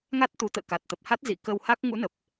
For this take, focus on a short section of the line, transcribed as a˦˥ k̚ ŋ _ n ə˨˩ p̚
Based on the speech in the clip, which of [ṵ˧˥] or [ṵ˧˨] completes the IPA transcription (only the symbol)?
ṵ˧˥